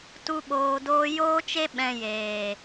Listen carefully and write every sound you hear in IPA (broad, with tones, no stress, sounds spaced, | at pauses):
t u˦ ɓ oː˧ d oː˦ j oː˦ t͡ʃ e˦ ɓ ɛ̃˧ j eː˨